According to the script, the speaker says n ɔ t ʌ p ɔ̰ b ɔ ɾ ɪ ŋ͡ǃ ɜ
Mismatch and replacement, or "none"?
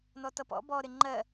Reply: none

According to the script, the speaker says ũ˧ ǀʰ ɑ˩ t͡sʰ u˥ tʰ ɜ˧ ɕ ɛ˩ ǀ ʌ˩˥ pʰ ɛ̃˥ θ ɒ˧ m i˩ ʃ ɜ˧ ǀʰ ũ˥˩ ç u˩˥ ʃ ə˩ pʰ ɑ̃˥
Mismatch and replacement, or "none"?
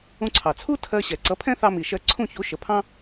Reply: ɒ˧ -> ɑ˧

